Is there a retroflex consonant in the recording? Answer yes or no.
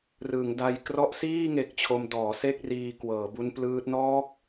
no